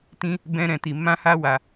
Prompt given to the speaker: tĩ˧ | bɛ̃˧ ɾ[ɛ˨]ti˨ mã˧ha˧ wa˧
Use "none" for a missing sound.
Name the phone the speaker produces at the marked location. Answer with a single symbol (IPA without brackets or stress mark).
ɛ̃˨